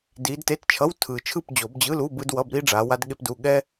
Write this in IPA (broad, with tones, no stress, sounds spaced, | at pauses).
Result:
d iː˨˦ d t e˧˥˧ t t͡ʃʰ ʌ˧˥˧ w tʰ ɯː˨˩ t͡ʃʰ ɯ˥˨ p d͡ʑ o˨˩˦ b d͡ʑ ɯ˧˥˧ l u˧˥˧ b ɯ˥ d w ʌ˧˥˧ b ɾ i˥ ɖ͡ʐ aː˨˦ w a˥ d ɠ e˥ p d u˧˥˧ ɠ ɛ˥